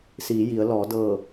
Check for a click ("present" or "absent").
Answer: absent